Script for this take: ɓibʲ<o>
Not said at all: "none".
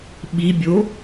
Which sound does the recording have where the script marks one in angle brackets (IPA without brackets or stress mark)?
o